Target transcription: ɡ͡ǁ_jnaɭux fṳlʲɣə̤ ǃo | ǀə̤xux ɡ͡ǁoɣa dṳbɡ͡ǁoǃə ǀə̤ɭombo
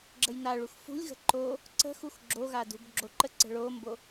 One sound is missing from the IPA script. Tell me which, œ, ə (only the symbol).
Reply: ə